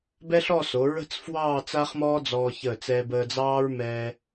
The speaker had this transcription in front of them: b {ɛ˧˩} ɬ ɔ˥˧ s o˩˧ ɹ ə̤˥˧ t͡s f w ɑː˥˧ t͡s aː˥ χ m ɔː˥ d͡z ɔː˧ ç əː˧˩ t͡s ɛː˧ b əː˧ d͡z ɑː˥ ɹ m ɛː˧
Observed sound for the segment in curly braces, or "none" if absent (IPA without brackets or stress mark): ɛ˥